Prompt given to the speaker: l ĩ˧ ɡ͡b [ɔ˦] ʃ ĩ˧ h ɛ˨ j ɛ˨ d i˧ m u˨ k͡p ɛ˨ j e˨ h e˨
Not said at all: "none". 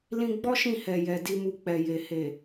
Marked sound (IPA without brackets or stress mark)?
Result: ɔ˦